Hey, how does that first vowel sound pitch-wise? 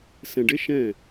low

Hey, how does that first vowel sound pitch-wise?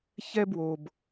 high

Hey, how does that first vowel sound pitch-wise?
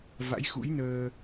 rising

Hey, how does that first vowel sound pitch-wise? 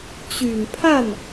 low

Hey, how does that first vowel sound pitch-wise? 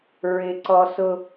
high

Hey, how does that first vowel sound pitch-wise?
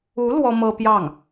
rising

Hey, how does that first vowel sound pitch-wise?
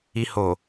low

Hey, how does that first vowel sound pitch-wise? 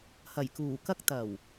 low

